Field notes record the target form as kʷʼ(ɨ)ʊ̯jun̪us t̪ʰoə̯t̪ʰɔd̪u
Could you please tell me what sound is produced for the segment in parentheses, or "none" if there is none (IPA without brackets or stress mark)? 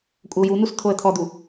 ə